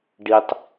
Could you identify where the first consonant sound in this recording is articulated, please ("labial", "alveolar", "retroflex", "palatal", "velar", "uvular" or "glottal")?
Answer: retroflex